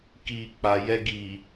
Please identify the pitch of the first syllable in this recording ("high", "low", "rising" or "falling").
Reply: low